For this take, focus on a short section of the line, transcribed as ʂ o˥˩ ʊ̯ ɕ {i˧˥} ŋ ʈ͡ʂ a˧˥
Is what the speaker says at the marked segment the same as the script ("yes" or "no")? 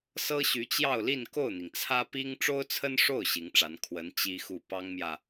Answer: yes